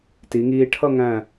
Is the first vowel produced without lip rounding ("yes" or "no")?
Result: yes